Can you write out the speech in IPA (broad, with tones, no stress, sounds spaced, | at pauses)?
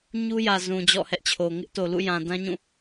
ɲ u˦ j ä˨ z ũ˨ d͡ʑ ɔ̰˦˨ h ɛ˦ ʔ t͡ɕʰ o˨ ŋ ɪ˦ ʔ t o˨ l ṵ˦˨ j ã˨ d ã˦ ɲ ũ˦˨